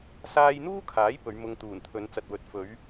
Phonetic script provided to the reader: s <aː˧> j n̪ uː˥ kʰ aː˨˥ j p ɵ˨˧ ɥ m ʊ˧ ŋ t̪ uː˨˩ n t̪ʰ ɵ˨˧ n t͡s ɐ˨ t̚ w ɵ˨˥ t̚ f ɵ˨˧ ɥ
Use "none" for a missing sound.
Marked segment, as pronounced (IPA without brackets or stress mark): aː˧